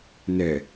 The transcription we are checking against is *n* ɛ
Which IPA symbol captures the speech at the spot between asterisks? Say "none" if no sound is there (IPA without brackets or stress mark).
n